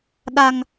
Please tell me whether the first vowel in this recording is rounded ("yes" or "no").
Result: no